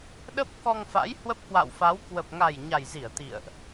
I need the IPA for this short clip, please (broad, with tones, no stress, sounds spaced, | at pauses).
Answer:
ɗ ə˦˥ p̚ k ɔ˧ ŋ f a̰˧˥ j h w ə˦˥ p̚ k w a̰˧˨ w f a˨˦ w k w ə˨˩ p̚ ŋ a˨˩ j ɲ a˨˩ j z i˧˩ ə̯ t̪ ḭ˧˨ ə̯ ʔ